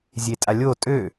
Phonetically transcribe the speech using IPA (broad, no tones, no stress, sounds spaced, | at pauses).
zʲ e tʼ a lʲ o tʼ ø